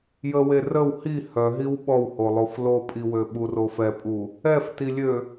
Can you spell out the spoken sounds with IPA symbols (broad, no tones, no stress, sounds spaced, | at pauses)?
j ə w e r ə w h i h œ ɦ i w ɓ ɔ w h o lˠ o f l o pʼ i w ø ɓ u r o f ɛ pʼ u | ɛ f t i lʲ ø